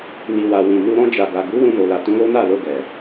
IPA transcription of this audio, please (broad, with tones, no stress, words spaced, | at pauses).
ni˨wa˨ wĩ˨nu˧ ɾɔ̃˧d͡ʒa˨ɡa˨ ɡu˨˦ wũ˧no˨la˨ tũ˨˦lo˦na˦˨lo˧ ɡɛ˨